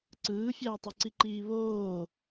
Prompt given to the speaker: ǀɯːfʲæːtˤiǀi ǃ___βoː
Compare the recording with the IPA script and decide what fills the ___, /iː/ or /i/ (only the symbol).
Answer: iː